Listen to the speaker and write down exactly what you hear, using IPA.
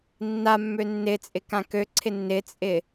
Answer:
nː a mː ø nː ɪ t͡sʼ ɪ k ã k ø ǀʰ ɪ nː ɪ t͡sʼ ɪ

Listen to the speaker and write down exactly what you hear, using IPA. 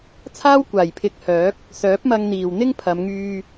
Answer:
t͡sʰ aː˥ w kʷ aː˨˩ j pʰ ɪ˨˥ k̚ h œː˨˥ k̚ | s œː˨˥ p̚ m ɐ˧ ŋ n̪ iː˨˩ w n̪ ɪ˥ ŋ pʰ ɐ˨˧ m ŋ yː˧

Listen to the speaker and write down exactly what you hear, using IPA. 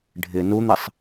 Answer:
ɖʱ ɪ n u n̪ ɪ sˤ

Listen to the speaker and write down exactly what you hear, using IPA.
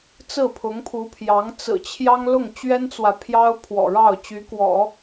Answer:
t͡s ɹ̩˥˩ pʰ ʊ˧˥ ŋ pʰ u˧˥ pʰ j ɑ˧˥ ŋ t͡s ɹ̩˨˩ t͡ɕʰ j ɑ˥ ŋ l ʊ˥˩ ŋ t͡ɕ ɥ ɛ˥ n t͡s w ä˨ pʰ j ɑ˥ ʊ̯ pʰ w ɔ̰˨˩ ɻ ɑ˥˩ ʊ̯ t͡ɕ y˧˥ k w ɔ̰˨˩˦

